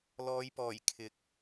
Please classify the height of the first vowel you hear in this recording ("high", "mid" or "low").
mid